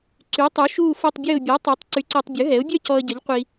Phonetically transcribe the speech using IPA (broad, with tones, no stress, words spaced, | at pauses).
ǀy˨˥tˤu˨˥ ʃuː˥˧fo˥˧tˤbʲəː˥˧ʊ̯ bʲɔ˨˥tˤo˨˥tˤ ǀy˨˥ǀəː˧tˤbʲœ˨˥ɦɛ˨˥ʊ̯ bʲœ˥˧cɔ˧ə̯ɟə˨˥ʎ qʷi˧